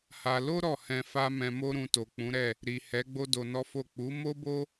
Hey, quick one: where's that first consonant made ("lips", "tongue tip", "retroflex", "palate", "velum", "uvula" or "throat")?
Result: throat